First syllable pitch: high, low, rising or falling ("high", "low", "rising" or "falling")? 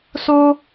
high